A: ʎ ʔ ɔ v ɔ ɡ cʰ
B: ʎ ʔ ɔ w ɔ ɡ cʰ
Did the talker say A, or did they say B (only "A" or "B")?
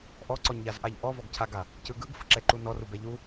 A